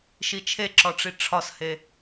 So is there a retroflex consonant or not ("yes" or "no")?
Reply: yes